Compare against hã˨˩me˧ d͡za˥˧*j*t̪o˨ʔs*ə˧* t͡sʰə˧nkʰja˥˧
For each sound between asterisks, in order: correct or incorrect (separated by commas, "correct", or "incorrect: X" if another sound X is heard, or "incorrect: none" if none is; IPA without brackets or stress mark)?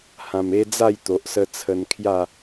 correct, correct